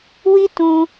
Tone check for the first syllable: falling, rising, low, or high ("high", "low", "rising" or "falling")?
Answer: high